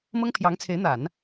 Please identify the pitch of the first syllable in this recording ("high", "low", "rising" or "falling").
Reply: high